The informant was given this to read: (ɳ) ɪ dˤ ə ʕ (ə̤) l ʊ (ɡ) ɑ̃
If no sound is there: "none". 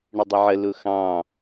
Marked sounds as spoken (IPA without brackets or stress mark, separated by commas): ɳ, ə, x